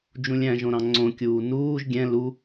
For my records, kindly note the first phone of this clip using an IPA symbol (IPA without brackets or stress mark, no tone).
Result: d͡ʒ